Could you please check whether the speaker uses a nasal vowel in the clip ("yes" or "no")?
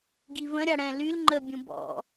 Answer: yes